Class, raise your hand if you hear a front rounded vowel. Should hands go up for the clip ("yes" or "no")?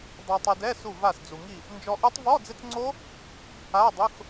no